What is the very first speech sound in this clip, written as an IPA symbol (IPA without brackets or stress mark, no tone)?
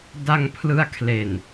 d